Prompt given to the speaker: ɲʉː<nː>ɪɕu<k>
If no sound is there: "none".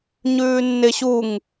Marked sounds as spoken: nː, ŋ

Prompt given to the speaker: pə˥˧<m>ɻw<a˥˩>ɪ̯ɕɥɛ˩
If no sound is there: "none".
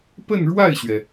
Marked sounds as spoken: n, a˥˩

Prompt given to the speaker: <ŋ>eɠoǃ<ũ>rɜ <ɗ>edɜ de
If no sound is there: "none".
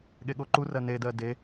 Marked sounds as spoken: ɠ, u, n

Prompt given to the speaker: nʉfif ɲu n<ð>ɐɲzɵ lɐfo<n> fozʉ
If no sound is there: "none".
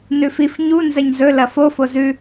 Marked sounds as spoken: z, none

